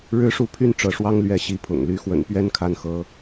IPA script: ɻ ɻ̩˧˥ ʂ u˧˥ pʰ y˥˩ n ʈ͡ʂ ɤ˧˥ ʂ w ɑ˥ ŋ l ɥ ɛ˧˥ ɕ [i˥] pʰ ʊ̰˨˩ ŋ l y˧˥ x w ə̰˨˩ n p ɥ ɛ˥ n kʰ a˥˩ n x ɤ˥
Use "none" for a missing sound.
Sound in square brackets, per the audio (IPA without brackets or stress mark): i˧˥